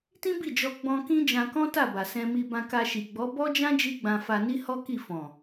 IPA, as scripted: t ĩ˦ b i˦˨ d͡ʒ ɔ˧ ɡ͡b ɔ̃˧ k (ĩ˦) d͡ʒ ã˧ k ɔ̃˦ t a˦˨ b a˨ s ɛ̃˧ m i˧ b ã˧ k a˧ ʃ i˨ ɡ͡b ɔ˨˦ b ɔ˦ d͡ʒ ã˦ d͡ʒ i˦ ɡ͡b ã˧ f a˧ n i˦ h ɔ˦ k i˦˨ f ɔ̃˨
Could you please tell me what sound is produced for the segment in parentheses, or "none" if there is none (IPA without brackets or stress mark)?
ĩ˦